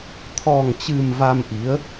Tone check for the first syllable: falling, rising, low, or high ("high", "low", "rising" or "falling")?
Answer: low